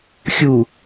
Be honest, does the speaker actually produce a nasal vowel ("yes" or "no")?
no